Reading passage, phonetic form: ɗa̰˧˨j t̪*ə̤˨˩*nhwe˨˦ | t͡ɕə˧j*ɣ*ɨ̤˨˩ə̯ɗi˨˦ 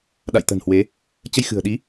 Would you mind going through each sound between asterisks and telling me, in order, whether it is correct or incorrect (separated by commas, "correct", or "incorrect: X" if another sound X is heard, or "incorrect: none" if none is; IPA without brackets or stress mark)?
correct, incorrect: x